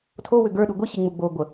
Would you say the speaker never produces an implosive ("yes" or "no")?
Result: no